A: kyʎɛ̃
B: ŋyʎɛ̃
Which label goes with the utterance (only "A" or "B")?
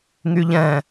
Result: B